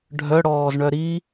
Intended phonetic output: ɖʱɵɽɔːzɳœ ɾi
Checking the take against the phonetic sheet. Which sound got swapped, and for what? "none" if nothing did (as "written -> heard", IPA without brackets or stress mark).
ɵ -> œ